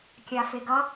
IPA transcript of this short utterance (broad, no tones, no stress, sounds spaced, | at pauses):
kʲ a f e ɡ ʌ